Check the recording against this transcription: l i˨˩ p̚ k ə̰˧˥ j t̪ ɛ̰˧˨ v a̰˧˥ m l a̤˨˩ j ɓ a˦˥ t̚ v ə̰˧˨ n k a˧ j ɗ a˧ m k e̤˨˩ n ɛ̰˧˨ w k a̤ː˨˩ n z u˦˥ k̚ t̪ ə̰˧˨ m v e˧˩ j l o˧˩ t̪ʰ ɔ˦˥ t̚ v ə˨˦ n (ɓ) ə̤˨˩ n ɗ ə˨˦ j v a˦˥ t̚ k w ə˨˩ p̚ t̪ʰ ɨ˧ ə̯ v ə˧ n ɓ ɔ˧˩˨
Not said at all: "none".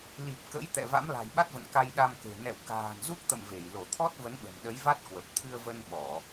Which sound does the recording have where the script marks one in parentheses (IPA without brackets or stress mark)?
ɓ